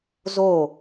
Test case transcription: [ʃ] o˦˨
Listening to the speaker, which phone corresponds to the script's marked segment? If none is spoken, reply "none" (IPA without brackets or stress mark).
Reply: z